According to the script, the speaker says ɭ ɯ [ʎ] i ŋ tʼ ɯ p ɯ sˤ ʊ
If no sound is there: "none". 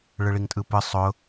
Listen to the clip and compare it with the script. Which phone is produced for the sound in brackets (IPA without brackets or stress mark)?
ɭ